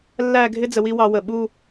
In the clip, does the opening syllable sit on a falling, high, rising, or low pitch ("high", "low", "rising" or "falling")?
falling